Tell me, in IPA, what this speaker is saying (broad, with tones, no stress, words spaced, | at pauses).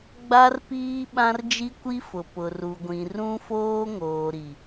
ɡ͡ba˦rpiː˦ ɓã˦rd͡ʒi˦kʷi˦fʊ˨ pʊ˨ru˨ɡʷĩ˨ rũ˦foː˦ŋoː˨ ɾi˨